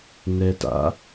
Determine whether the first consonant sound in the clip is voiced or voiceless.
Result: voiced